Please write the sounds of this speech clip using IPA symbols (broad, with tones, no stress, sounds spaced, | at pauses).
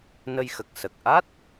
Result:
n ə˧ j x ə˨˩ k̚ s ə˨˩ k̚ ʔ a˦˥ t̚